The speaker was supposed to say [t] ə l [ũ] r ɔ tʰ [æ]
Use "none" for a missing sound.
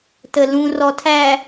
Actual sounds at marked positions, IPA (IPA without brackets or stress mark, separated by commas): t, ũ, æ